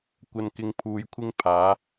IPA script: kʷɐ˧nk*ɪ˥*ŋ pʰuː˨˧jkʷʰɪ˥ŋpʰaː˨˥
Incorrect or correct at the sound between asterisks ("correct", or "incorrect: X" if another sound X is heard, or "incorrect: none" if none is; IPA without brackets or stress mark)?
incorrect: ɪ˧